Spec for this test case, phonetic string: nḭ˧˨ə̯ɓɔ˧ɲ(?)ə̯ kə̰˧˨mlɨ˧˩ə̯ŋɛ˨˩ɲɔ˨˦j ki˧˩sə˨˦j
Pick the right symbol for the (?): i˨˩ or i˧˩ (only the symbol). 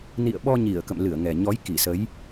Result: i˧˩